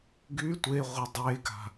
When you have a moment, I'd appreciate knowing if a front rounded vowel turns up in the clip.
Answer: yes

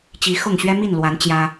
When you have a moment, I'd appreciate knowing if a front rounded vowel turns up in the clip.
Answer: no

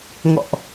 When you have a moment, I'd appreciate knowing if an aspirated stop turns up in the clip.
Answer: no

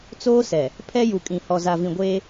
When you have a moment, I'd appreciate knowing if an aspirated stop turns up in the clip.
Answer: yes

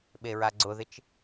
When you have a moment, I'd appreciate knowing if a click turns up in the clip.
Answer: yes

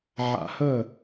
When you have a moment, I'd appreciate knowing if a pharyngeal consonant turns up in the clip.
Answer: yes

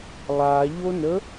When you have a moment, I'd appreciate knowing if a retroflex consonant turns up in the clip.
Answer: no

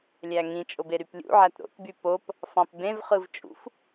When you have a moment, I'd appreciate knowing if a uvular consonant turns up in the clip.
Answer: yes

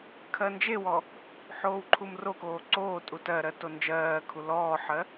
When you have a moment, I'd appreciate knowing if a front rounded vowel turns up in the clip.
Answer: no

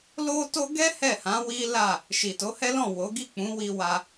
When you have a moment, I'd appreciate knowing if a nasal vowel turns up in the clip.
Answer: yes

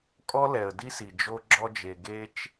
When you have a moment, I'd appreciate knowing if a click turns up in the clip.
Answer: yes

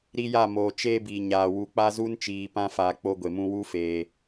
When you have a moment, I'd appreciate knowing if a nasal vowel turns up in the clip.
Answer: yes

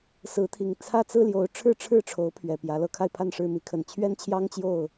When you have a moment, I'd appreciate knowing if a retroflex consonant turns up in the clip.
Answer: yes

